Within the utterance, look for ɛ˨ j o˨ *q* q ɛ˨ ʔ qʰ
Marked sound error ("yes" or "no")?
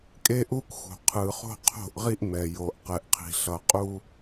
yes